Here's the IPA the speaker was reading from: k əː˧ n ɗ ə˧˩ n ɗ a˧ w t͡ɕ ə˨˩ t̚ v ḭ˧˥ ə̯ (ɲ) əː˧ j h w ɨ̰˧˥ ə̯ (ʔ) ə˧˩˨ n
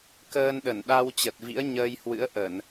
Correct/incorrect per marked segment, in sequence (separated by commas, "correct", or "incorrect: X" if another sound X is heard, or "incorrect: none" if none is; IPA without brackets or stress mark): correct, correct